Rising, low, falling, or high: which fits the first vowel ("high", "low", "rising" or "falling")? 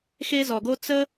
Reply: high